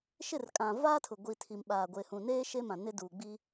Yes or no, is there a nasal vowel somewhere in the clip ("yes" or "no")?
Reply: yes